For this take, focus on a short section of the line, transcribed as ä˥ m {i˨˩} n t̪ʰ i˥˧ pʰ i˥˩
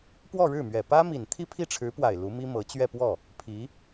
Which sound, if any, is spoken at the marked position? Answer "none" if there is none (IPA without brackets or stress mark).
i˨˩